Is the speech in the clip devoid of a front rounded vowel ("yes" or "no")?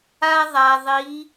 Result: yes